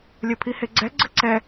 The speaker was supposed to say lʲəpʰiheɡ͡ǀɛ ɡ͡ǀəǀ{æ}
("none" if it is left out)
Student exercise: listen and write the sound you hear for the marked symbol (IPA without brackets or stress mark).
ɛ